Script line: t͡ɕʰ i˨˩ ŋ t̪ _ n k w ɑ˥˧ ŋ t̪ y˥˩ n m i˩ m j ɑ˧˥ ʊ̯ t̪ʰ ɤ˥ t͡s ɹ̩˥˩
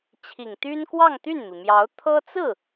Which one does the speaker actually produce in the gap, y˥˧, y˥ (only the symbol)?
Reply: y˥